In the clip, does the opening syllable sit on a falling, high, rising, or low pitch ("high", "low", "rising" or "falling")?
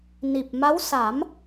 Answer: low